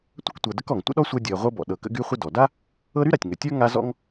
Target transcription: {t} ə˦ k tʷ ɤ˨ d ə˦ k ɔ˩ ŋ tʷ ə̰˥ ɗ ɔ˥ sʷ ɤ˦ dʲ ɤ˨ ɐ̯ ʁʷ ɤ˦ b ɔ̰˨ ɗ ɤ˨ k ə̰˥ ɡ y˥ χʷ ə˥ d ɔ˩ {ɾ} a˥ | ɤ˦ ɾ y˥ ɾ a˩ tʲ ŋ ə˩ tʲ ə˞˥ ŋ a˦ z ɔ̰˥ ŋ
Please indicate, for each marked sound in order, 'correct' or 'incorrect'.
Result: incorrect: tʷ, incorrect: d

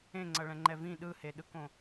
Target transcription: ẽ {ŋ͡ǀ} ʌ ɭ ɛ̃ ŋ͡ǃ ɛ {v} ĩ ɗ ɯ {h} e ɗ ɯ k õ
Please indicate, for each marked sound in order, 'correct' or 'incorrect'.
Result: correct, correct, correct

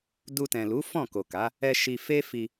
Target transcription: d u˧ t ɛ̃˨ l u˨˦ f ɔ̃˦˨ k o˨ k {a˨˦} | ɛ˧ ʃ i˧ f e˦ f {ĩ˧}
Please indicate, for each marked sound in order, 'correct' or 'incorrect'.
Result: correct, incorrect: i˧

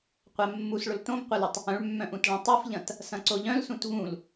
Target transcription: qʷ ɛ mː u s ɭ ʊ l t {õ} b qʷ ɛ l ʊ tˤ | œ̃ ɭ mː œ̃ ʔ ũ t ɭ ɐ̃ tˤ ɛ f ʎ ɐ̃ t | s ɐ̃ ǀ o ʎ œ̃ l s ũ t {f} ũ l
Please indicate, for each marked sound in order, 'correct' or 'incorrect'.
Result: correct, incorrect: v

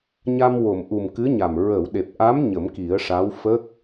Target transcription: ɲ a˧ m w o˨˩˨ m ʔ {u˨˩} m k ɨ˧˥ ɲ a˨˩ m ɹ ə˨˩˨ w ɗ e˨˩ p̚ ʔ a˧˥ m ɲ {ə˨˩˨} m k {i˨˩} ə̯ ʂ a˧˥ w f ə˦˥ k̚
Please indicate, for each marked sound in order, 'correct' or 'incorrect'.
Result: correct, incorrect: ə˨˩˦, incorrect: i˨˩˦

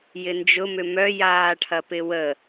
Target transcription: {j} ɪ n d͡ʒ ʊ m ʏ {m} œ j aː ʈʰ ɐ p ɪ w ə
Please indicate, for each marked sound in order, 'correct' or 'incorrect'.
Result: correct, correct

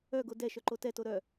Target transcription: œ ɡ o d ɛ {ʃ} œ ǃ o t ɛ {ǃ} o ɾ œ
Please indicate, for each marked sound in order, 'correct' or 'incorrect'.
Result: correct, incorrect: t

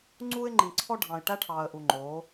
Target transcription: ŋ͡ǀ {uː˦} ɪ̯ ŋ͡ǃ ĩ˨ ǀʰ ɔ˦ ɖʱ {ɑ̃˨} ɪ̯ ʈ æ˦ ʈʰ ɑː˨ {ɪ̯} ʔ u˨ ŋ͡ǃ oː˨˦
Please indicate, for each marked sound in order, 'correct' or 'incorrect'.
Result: correct, correct, incorrect: ə̯

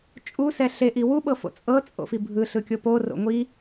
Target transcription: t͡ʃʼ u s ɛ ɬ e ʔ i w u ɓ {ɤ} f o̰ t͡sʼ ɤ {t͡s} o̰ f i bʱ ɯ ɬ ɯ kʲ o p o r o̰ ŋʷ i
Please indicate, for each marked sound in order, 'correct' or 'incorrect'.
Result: correct, incorrect: t͡sʼ

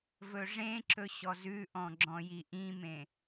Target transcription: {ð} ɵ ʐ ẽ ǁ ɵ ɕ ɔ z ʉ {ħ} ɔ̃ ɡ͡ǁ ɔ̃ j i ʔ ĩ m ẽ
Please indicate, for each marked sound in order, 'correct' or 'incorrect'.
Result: incorrect: v, incorrect: ʔ

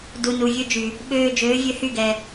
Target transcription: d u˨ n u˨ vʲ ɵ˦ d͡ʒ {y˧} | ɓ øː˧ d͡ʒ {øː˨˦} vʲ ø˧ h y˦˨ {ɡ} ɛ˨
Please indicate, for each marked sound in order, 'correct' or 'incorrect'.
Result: incorrect: y˨, correct, correct

